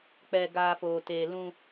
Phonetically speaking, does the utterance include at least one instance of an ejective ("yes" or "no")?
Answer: no